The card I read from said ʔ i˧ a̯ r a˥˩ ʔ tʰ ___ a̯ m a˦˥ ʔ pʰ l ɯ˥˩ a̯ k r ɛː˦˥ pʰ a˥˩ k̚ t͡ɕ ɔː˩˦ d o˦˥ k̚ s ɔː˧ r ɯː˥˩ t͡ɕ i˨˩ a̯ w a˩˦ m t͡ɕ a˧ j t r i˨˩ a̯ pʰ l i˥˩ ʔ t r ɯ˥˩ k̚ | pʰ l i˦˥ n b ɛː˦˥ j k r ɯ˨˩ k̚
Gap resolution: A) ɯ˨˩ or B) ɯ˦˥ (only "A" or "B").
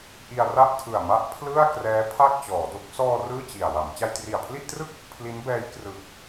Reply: A